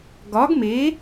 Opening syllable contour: rising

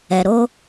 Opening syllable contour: low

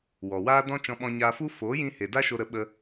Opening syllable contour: low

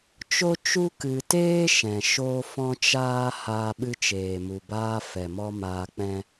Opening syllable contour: high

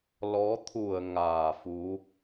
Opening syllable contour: rising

